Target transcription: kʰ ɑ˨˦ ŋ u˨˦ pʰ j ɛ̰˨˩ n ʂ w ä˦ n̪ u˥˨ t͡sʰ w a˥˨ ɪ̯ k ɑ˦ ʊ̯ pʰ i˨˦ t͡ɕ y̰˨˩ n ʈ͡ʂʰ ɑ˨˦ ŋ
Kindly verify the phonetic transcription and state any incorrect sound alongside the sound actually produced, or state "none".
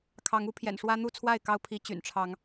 none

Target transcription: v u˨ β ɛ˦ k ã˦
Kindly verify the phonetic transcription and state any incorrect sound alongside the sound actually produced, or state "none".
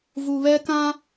none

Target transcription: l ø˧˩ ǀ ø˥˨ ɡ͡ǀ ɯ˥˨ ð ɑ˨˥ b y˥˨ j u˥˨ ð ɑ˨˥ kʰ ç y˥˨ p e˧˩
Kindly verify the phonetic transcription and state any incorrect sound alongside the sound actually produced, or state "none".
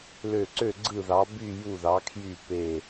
ç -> j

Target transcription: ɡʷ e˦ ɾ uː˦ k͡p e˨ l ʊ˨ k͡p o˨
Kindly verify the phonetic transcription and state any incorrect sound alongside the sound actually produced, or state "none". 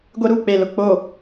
none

